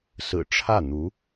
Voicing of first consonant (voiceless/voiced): voiceless